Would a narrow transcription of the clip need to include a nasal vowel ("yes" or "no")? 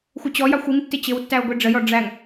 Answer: no